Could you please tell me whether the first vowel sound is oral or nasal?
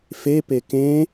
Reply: oral